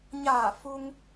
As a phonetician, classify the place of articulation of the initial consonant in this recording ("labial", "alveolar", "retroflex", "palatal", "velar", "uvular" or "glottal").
palatal